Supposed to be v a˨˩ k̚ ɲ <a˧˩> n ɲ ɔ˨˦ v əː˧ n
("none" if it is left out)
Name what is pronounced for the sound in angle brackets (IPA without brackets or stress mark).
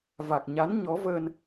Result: a˨˦